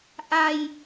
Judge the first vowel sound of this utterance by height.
low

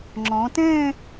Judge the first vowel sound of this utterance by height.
mid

